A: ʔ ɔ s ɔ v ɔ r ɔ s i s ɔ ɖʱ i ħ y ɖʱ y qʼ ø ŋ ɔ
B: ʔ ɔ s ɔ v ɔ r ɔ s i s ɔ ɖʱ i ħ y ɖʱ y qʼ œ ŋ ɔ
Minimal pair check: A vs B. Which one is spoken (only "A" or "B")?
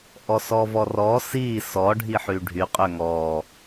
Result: A